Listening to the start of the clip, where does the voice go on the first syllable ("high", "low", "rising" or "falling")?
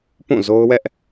falling